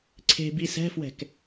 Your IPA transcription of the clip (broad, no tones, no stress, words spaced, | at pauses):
ǀʰe̤ bisɛ̤fwɛ̤k